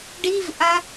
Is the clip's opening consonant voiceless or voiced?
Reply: voiced